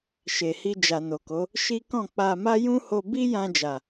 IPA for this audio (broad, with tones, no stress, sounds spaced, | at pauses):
ʃ e˨ h i˧ d͡ʒ a˨ n o˨ k o˨˦ | ʃ i˦ k ɔ̃˦˨ k͡p a˧ m a˦ j ũ˦ h o˧ b i˦ j ã˧ d͡ʒ a˨